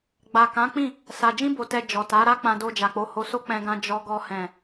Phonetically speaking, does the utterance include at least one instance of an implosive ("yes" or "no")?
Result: no